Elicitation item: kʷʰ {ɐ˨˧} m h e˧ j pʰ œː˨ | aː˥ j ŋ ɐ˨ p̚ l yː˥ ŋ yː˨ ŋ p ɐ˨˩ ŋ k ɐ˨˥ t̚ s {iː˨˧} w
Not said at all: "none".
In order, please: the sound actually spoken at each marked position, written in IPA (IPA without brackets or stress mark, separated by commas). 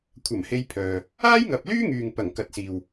ɐ˨˩, iː˨